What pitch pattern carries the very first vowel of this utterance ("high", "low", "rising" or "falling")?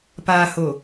low